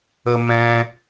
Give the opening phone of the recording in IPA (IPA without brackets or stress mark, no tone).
ə